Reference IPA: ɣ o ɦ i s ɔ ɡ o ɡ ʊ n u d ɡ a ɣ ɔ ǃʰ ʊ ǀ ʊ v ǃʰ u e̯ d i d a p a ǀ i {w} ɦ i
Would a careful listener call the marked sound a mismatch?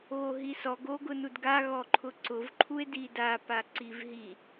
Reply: yes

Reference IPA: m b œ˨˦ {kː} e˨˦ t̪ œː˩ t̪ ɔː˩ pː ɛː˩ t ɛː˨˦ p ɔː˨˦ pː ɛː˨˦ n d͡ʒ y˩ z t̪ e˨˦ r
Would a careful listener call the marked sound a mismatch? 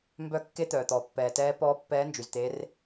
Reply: no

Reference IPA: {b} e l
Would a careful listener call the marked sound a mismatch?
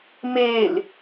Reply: yes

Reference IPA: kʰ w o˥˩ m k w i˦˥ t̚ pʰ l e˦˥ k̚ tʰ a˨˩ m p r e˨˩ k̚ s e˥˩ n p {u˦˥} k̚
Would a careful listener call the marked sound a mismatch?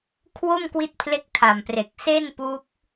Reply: no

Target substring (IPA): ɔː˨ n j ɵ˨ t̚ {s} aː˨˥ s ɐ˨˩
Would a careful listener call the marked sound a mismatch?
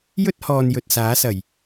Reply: no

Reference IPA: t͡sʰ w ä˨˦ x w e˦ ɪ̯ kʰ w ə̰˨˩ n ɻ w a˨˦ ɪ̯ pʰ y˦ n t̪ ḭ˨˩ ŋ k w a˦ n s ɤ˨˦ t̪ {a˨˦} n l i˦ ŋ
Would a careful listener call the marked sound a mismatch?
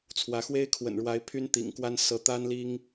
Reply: yes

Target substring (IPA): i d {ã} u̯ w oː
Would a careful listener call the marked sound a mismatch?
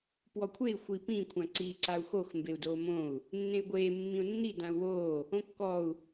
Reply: no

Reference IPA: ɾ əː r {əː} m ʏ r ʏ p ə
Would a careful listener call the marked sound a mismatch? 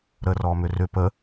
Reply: yes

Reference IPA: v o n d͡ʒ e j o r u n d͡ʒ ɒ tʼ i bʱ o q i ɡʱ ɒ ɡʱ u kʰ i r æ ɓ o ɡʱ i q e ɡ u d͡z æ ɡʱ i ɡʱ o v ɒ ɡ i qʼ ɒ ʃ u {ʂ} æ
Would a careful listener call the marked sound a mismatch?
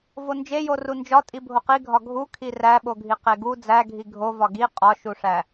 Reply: no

